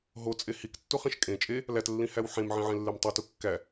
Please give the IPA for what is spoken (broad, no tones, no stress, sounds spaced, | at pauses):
ɦ o t͡sʼ e h i k tː u χ ẽ ʃ kʼ ẽ t͡ʃʼ e | l æ t lː ĩ h æ w ħ ẽ m ʕ ĩ ʕ ẽ lː e m tˤ o t u kː æ